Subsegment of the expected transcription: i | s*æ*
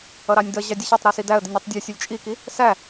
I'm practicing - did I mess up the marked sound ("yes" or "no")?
no